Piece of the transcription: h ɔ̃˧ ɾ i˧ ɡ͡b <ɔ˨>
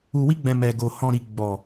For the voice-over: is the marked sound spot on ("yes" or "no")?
yes